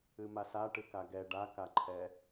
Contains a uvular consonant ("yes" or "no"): no